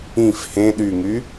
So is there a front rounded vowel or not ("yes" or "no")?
yes